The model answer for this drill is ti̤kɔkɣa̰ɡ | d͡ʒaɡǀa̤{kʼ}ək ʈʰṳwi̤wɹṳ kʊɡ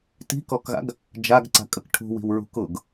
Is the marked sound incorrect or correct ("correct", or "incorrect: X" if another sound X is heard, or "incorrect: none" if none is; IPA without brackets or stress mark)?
correct